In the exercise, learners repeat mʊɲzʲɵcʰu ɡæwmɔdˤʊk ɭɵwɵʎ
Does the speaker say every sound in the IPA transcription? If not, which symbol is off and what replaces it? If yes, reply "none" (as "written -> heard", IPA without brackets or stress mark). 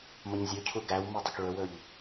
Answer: ɔ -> ɵ